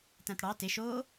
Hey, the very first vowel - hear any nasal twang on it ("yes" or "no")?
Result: yes